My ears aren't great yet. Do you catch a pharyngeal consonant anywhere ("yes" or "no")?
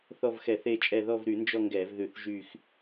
no